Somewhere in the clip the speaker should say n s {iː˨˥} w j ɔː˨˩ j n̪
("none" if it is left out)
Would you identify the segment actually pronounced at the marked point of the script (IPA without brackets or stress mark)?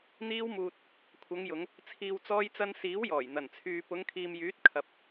iː˨˥